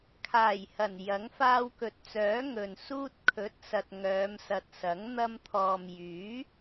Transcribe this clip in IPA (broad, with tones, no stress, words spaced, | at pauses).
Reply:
kʰaː˨˩jhɐ˨˩n jɐ˨˥ŋ faː˧wkɵ˨t̚t͡sœː˨˥ ŋɵ˨nsuː˥t̚ kʰɵ˨˥t̚sɐ˨t̚ ŋœː˨˧msɐ˨t̚sɐ˨˥ŋ n̪ɐ˧mt̪ʰɔː˨mjyː˨˥